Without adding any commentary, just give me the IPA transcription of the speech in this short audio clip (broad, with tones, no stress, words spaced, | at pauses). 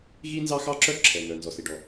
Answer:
ɣi˥nzɑ˥xɑ˥ǁœ˥ ǁʰɛ˩ŋœ˩ nzɔ˩si˩ɖɔ˩